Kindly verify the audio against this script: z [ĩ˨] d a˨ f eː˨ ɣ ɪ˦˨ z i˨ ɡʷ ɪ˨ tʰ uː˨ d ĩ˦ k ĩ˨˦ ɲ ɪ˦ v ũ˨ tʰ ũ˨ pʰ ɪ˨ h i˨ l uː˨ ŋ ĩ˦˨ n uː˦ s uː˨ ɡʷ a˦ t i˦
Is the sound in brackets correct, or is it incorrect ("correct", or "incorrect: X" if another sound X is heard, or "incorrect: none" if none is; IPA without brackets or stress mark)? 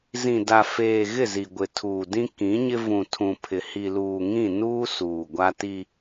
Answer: correct